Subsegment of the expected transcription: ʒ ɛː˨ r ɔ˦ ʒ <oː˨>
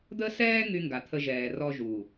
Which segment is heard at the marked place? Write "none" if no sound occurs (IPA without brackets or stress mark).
uː˨